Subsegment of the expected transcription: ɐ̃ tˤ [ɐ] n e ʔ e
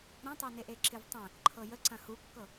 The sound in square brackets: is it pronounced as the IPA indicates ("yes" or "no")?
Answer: yes